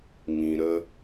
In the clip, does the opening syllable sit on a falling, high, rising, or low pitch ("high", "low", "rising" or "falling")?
low